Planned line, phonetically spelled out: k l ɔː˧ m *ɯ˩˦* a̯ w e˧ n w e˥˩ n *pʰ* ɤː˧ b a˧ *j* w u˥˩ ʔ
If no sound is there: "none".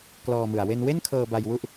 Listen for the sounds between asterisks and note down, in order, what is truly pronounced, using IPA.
ɯ˨˩, kʰ, j

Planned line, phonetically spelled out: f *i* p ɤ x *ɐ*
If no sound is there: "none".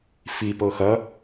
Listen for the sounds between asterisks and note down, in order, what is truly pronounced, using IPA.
i, ɐ

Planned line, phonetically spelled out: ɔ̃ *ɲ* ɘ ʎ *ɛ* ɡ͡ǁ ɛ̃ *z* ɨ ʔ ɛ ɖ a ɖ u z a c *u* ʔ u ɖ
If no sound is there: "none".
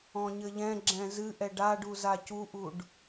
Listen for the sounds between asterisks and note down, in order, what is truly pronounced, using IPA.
ɲ, ɛ̃, z, u

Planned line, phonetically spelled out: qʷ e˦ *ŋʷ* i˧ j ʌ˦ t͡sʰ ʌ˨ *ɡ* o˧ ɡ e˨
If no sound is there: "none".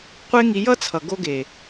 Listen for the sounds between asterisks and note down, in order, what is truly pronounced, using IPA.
ŋ, ɡ

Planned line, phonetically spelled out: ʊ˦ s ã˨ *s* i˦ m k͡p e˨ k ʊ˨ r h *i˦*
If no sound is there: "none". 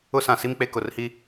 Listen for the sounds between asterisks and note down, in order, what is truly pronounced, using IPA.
s, i˦

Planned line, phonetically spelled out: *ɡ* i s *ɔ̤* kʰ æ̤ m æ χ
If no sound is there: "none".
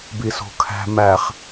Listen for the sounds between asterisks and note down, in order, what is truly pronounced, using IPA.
b, o̤

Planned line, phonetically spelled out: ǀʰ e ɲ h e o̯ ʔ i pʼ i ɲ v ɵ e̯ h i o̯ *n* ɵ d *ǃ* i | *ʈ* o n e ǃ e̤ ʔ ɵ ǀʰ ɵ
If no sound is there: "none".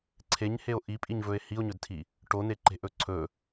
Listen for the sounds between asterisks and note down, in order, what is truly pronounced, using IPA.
ɲ, tʰ, ʈ

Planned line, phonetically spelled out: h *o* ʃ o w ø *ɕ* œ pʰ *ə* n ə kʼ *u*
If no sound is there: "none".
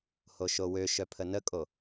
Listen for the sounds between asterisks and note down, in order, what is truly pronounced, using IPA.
o, ʃ, ə, o

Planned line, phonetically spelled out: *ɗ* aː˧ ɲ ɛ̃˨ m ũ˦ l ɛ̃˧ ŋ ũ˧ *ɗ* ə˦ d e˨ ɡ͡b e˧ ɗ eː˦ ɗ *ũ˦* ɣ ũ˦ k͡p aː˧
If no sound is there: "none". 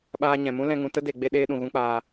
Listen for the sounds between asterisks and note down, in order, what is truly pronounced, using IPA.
ɓ, t, ũ˨

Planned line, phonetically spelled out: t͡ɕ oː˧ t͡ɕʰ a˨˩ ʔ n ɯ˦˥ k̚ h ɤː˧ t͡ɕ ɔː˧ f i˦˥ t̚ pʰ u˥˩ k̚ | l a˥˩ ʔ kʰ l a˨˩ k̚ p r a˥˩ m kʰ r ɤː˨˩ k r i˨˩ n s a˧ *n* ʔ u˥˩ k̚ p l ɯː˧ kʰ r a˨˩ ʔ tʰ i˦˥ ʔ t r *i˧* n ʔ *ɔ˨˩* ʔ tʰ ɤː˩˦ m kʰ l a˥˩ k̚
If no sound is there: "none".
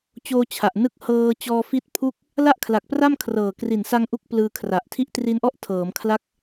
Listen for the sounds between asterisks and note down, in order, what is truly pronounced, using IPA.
ŋ, i˧, ɔ˥˩

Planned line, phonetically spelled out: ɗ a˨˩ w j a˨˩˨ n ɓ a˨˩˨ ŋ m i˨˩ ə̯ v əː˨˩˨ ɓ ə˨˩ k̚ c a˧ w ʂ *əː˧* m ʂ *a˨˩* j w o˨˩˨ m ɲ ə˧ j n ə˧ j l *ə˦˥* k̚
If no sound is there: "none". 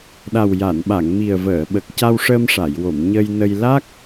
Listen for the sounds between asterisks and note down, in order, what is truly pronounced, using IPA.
əː˧, a˨˩˨, a˦˥

